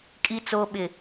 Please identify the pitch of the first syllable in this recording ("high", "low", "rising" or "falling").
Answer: low